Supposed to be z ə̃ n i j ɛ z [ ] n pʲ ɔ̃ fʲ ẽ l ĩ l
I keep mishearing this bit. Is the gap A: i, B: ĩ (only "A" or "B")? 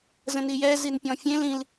A